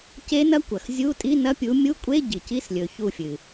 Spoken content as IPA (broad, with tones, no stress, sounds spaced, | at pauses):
c e˦˥ n ɐ˦˥ kʷ ɐ˩ x zʲ u˧˥˧ tʼ i˧˥˧ n ɐ˧˥˧ pʲ u˨˦ mʲ u˧˥˧ kʷʼ e˧˥˧ ɟ i˩ c i˧˥˧ s lʲ ɵ˩ ç u˧˩ fʲ ɨ˩